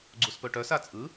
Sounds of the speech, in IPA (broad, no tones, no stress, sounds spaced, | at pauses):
ɡ͡ǀ u s p ɵ ʈ œ s a t͡sʼ ɯ